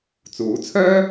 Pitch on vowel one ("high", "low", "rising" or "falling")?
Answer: rising